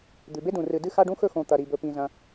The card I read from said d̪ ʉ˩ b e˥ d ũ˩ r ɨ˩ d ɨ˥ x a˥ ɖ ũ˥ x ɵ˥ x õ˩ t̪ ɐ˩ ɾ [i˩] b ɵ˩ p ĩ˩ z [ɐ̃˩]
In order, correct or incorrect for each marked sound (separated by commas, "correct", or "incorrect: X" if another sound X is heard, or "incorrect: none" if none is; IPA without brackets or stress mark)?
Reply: correct, correct